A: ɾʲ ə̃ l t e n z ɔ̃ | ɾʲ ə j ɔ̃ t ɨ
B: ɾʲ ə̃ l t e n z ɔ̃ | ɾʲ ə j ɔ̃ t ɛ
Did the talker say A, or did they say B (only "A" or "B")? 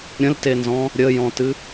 A